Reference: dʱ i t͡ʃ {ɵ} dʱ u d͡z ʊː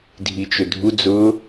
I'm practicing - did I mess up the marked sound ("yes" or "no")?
no